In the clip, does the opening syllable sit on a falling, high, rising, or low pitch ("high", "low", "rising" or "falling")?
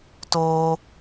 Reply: high